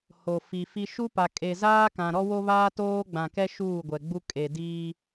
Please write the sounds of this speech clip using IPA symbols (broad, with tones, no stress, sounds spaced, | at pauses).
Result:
h o˨ f i˨ f i˦ ʃ u˦ p a˨ kʼ e˨ z aː˦ k ã˨ ɾ ɔ˦ w o˦ β aː˦ t oː˦ ɡ͡b ã˨ k ɛ˦ ʃ uː˦˨ ɡʷ ɛ˨ ɡ͡b u˦ kʼ e˨ d iː˦